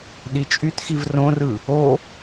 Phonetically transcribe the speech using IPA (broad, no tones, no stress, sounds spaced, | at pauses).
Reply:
ɗ i t͡ʃʼ y t x i v r õ r ɯ | o